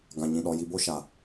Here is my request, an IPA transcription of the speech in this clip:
ɡ ã˨ ɲ ĩ˨ ɗ ɔ˨ j i˨ b o˦ ʃ a˨

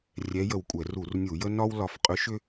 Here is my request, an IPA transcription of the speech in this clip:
rʲ ɛ˧˥ j ə˧˩ w kʷʼ ɛ˧˩˧ r u˧˩˧ r nʲ u˧˩˧ j ə˥ n ɒ˥ w l ɒ˧˩ f qʼ ʏ˧˥ ʃ ʏ˥

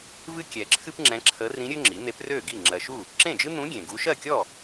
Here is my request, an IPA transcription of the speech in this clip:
v ɨ˥ kʲ ɛ˨ ǁʰ ɨ˥ p ŋ͡ǁ ɛ̃˧˥ ǁʰ ə˧˥ r ĩ˧˥ ɾʲ ø˥ ŋ͡ǁ i˩˥ n̪ e˧˥ p r ø˥˩ ɡ i˥˩ ŋ͡ǁ ɜ˨ ʃ u˥˩ | ǁ ẽ˥˩ d͡ʒ ɨ˥ n̪ ũ˧˥ ɡʲ ẽ˨ ɡ u˧˥ ʃ ɜ˥˩ kʲ ɔ˥˩

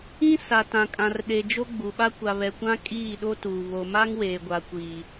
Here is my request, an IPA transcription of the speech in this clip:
ĩ˦ s a˨ t ã˨ kʼ ã˨ r ɗ e˨ d͡ʒ o˦ ɡ͡b u˨ ɓ a˦ kʷ a˨ β ɛ˨ kʷ ã˦ kʼ iː˦˨ ɗ o˦ t uː˨ β o˨ m a˦ ŋ w eː˨ ɡʷ a˨ kʷ iː˨

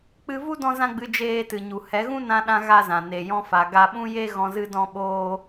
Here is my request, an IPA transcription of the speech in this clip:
k͡p ɨ˧ v u˦ d ɔ̃˦ z ã˦ ɡ͡b ɨ˧ d͡ʒ eː˧ t ɨ˨ ɲ u˨ h ɛ˨˦ ɣ ũ˦ n ã˧ ɗ ã˧ ɣ a˦ z ã˨ n e˨ j ɔ̃˧ f a˨ ɡ a˧ ɓ ũ˦ j e˦ ɣ ɔ̃˧ z ɨ˧ d ɔ̃˦ ɓ oː˦

